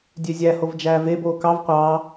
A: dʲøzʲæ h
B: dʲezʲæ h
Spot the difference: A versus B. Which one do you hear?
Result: A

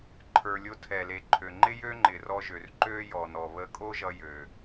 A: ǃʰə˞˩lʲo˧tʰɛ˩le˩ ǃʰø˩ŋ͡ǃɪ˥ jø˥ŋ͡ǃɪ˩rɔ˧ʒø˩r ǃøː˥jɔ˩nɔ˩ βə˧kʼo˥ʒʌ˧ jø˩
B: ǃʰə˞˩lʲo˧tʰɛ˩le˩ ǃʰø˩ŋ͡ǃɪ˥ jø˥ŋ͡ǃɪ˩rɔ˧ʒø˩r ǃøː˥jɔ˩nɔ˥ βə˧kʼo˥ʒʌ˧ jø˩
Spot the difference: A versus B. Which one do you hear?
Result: A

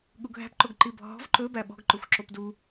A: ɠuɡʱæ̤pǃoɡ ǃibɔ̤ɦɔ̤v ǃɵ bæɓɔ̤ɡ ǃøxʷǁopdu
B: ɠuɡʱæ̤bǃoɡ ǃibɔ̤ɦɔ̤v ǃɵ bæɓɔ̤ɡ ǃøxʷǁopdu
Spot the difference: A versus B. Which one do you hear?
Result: A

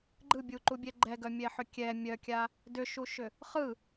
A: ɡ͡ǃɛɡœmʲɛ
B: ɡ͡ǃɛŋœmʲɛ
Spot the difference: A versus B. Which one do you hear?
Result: A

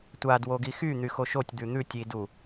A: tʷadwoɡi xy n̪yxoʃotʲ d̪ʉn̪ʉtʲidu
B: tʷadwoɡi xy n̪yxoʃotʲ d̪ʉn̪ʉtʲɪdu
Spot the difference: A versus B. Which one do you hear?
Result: A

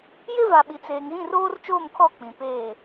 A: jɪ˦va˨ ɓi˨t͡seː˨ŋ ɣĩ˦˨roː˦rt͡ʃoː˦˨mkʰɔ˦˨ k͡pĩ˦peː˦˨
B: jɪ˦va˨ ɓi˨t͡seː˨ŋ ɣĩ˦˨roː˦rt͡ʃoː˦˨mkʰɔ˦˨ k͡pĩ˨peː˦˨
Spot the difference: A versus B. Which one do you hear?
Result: B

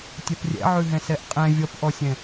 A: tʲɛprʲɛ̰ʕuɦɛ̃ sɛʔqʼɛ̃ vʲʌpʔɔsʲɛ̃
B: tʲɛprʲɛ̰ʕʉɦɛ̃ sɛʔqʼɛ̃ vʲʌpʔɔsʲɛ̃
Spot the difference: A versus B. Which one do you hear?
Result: B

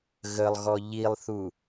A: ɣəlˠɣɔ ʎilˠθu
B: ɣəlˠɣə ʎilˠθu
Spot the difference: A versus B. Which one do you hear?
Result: A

